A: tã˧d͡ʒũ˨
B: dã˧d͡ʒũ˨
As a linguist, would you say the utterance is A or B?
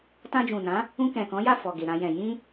A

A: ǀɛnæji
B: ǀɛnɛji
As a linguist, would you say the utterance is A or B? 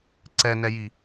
B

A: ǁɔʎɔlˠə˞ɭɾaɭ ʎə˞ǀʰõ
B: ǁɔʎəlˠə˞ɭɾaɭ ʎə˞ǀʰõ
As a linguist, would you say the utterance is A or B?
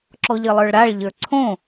B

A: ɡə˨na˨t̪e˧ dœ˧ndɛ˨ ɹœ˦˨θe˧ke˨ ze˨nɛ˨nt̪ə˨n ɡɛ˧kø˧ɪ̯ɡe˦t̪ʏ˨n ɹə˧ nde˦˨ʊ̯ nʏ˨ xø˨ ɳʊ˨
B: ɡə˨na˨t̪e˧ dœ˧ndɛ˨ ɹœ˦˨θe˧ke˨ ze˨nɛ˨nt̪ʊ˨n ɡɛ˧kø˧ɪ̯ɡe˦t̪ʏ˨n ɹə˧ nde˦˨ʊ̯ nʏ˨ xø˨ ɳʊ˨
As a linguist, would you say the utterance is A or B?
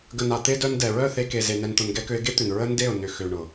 B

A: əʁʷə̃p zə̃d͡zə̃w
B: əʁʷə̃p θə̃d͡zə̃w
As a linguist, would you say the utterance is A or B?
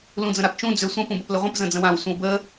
A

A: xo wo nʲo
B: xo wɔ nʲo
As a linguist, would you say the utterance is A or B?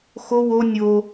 A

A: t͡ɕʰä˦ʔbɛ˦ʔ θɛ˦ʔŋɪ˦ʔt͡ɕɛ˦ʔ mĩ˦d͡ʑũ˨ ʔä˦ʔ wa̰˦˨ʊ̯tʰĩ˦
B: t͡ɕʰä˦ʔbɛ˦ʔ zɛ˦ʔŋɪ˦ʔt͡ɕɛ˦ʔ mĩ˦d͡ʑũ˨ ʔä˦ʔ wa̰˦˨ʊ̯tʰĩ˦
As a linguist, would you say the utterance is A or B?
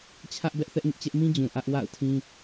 A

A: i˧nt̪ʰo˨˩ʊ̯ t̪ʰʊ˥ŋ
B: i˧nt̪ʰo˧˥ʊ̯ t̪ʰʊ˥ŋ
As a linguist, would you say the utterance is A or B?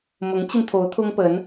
B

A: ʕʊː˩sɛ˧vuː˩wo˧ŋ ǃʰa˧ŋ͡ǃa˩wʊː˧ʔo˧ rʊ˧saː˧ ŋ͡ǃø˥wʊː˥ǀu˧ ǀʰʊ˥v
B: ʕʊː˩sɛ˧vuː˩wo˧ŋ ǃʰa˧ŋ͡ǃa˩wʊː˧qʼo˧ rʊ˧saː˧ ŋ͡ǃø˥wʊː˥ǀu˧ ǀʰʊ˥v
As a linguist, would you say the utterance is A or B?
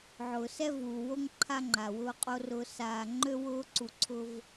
B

